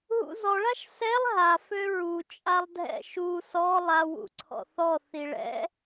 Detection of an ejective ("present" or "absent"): present